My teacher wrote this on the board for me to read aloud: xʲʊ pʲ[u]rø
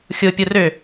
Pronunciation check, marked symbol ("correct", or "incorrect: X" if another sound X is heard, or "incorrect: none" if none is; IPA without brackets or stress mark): incorrect: o